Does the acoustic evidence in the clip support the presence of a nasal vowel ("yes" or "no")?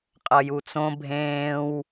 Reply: yes